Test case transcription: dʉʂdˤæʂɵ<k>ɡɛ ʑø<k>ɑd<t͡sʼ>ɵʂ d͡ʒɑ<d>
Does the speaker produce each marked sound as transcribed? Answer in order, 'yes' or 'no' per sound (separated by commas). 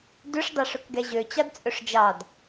yes, no, yes, yes